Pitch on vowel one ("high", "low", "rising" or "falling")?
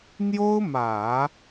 high